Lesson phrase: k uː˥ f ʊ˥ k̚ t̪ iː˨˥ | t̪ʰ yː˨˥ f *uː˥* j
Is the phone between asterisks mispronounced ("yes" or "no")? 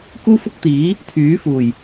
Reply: yes